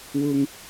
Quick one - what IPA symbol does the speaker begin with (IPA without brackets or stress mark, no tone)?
w